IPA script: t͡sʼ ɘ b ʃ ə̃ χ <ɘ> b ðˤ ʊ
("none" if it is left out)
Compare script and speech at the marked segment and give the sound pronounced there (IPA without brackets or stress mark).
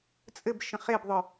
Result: e